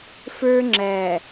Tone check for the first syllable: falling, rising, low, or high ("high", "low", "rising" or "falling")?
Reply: high